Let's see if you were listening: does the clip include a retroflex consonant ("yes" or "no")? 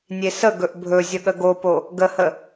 no